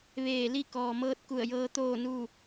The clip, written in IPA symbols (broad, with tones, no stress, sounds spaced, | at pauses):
ʋ eː˧˩ l i˥˨ k ɔː˩ m ɤː˧ t̚ k u˧˩ ə̯ j ɤː˧ t̪ oː˥˨ n u˥˨